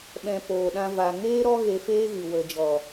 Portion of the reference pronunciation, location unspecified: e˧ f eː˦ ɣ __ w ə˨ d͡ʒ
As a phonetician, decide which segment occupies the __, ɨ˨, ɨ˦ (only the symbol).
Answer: ɨ˨